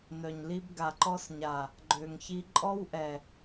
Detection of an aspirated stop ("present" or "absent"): absent